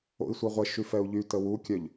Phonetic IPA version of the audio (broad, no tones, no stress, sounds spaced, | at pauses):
o̰ i̯ sʷ œ ʁʷ ɛ ʃ y f ɛ u̯ ʎ y t ə w u kʲ œ ʎ